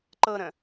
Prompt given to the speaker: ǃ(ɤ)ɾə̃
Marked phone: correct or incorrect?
correct